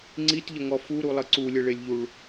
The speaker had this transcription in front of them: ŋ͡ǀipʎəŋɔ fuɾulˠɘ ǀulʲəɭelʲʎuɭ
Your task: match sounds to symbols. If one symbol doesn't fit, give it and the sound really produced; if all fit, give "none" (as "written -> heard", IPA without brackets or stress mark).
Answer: p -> t